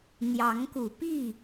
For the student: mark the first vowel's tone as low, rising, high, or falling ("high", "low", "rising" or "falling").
rising